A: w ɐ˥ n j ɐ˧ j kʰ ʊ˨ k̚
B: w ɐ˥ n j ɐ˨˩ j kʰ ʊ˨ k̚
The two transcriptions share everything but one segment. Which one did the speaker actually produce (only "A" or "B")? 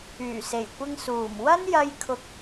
A